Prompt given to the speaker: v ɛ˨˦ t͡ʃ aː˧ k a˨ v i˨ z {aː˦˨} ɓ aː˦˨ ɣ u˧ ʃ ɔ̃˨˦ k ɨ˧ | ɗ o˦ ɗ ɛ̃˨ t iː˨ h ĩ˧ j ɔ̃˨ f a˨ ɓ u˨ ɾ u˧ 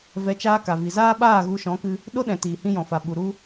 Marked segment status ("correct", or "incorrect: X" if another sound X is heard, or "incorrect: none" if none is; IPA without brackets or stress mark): incorrect: aː˦